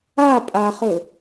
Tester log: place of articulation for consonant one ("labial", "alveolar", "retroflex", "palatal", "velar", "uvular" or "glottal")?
labial